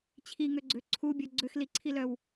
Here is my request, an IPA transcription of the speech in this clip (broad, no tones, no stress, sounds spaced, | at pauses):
t͡ɕʰ i ŋ ø ɡ͡ǀ ø ǀʰ u bʲ œ ɡ͡ǀ ø x l i ǀʰ i l œ w